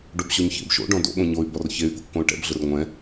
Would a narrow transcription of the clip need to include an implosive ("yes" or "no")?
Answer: yes